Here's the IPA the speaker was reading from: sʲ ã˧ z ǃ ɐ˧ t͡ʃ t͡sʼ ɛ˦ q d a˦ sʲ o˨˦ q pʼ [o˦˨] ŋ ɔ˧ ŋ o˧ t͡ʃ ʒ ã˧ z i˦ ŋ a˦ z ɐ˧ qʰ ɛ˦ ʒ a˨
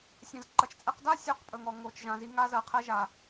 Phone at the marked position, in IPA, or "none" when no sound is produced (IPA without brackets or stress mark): ɵ˦˨